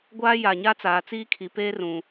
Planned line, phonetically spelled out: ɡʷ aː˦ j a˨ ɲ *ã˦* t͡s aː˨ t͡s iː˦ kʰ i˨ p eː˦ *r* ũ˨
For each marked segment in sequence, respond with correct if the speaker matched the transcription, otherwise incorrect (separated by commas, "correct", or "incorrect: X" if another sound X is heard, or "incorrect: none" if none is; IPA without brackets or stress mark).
incorrect: a˦, correct